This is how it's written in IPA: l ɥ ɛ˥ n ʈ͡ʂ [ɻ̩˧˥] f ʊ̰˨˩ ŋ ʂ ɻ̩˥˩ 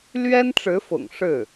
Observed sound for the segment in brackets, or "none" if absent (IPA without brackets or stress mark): ɻ̩˧˥